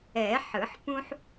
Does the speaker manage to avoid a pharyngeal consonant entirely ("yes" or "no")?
no